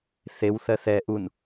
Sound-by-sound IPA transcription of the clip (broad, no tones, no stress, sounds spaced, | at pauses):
θ e w θ ɜ θ ɛ ʔ u n